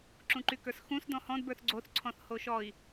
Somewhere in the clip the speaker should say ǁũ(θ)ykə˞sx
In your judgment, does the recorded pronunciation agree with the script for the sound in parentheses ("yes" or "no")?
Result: no